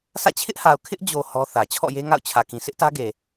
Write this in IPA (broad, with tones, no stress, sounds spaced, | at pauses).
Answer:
sʰ ä̰˦˨ t͡ɕʰ ɪ˦ ʔ h a˨ ʊ̯ kʰ ɪ˦ ʔ d͡ʑ o˨ h ɔ˦ θ ä˨ t͡ɕʰ ɔ̰˦˨ j e˦ ŋ a̰˦˨ ʊ̯ t͡ɕʰ ä˨ k ĩ˨ s ɪ˦ ʔ t ä˦ ɡ e˨